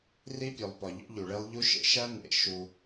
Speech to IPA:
r i˦ pʲ o˨ lˠ p ɒ˨ ʎ o̰˦ ʎ u˨ ɭ e˦ lˠ ʎ u˦ ʃ ḛ˦ ʃ æ˦ n ḛ˨ ʃ u˦

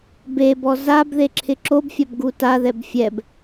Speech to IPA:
b e b ɔ z a b ð e ǁʰ ɪ ǁ o b fʲ a b ɡ u t a ð ɛ b fʲ ɛ b

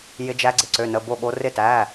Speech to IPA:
j ɪ˦˥ d͡ʒ æ˦˥ ɡ͡ǀ ɪ˨˦ ǀ ø˧˥˧ n ə˧˥˧ b o˥˨ ɠ o˦˥ r ɪ˥˨ t æ˧˥˧

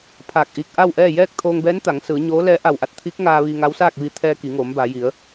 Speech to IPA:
pʰ aː˧˩ k̚ ʔ iː˧ k̚ ʔ a˥˨ w ʔ ɛː˥˨ j ɛː˥˨ k̚ t̪ʰ oː˧ ŋ b ɛː˧˥ n t̪ a˩˧ ŋ s ɯː˩˧ ɲ oː˧˥ l ɛː˧˥ ʔ a˧˩ w ʔ a˧ t̚ t̪ʰ iː˧˥ k̚ ŋ aː˧ ʋ iː˧ ŋ a˧˥ w s aː˥˨ k̚ ʋ i˧ t̪ʰ ɛː˧ k i˩˧ ŋ oː˩˧ m b a˩˧ j i˩˧ ə̯

